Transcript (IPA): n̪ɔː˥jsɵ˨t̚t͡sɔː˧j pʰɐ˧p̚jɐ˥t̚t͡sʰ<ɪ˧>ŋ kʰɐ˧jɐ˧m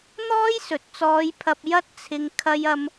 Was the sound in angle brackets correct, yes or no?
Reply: yes